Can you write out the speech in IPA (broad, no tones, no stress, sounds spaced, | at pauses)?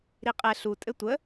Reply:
ɾ i qʼ ɛ ɬ u tʼ ɘ tʷ ə